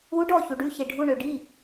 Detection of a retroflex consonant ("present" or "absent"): present